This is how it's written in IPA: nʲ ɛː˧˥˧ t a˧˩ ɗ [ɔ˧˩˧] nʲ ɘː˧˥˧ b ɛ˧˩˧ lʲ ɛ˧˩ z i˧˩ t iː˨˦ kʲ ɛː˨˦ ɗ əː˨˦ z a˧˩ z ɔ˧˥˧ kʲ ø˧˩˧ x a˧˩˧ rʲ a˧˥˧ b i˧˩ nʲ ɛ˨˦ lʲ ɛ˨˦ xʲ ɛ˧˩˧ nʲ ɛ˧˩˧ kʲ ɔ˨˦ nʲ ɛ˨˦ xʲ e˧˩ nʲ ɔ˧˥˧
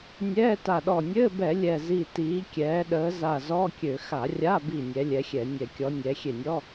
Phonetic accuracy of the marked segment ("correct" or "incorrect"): incorrect